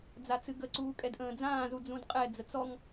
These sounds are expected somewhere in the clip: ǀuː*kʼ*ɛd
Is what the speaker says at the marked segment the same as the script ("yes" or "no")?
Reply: yes